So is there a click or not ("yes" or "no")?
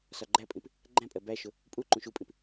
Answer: yes